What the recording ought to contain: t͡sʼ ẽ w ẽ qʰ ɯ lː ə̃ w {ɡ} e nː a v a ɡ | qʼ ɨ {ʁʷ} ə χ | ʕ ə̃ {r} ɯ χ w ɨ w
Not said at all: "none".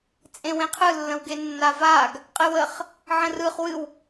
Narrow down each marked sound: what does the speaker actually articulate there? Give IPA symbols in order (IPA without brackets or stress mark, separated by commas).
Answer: ɡ, w, r